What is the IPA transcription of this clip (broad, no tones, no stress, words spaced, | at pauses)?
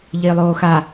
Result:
ʎɪːlˠoːxa